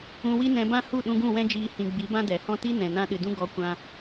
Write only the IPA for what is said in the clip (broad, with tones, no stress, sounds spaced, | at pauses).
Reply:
ũ˧ w i˦ n ɛ̃˧ b ã˦ h u˦˨ ɗ ũ˧ ɡ ũ˦˨ w ɛ̃˦ d͡ʒ iː˧ h ĩ˨ ɡ͡b i˨˦ b ã˦ d ɛ˨ h ɔ̃˦ t i˦ n ɛ̃˨ n ã˦ ɗ ɨ˨ d ũ˦ ɡ ɔ˨˦ kʷ ã˧